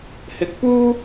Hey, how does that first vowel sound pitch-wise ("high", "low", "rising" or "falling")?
rising